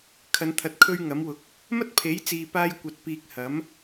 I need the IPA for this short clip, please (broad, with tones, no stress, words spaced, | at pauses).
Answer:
kʰɐ˨˧nt̪ʰɐ˨t̚ kʰɵ˥ɥŋɐ˨˥mwʊ˨˥k̚ | mɐ˥t̚pʰe˨˥jt͡siː˨ paː˥jkʷɐ˧t̚ piː˧k̚hɐ˨˥m